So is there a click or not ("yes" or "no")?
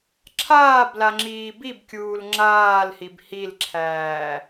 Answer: yes